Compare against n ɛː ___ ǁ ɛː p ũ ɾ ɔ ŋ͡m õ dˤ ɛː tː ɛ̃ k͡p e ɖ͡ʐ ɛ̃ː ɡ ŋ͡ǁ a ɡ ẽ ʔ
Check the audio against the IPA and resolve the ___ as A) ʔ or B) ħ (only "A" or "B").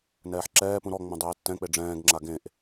B